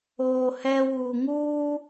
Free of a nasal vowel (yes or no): yes